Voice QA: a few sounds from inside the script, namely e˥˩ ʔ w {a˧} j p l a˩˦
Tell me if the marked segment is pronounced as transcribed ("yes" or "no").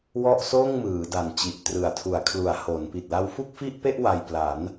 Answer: yes